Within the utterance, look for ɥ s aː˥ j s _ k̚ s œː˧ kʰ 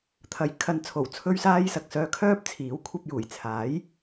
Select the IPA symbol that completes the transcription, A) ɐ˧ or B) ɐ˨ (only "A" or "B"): B